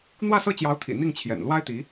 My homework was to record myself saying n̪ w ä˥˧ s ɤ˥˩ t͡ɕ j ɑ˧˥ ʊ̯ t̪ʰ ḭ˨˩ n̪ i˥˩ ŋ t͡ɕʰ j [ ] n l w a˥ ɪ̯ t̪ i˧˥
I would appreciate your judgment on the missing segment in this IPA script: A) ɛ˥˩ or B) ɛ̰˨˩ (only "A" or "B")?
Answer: B